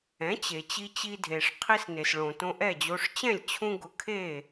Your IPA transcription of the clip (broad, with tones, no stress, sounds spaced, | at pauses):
ɛ̃˩˥ t͡ɕ e˩ t͡ɕ i˧ t͡ɕ i˧ dʱ e˩ ʂ qʰ i˧ s n e˩ s ɭ õ˩ t õ˧ ʔ ɛ˥˩ d͡ʑ o˧ ʂ t͡ɕ ɛ̃˥˩ lʲ t͡ɕʰ ũ˧ ɡ ʊ˩˥ kʰ e˥˩